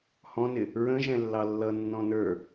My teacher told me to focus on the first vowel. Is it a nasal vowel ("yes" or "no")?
yes